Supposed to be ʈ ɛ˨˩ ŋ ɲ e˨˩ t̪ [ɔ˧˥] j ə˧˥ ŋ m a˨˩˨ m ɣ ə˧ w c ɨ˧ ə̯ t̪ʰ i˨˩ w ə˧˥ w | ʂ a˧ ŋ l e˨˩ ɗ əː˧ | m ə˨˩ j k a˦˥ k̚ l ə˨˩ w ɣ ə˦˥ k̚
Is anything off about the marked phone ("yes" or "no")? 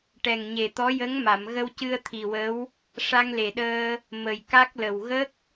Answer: no